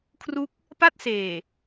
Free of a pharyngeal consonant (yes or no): yes